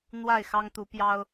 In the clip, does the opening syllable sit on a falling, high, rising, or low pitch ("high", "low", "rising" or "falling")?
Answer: falling